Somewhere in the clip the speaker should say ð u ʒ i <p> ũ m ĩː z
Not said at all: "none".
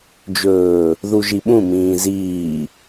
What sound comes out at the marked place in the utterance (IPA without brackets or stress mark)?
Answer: ɓ